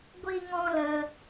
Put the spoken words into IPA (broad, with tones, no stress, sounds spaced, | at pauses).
ɡʷ i˦ ŋ ɔ̃˦ l ə˧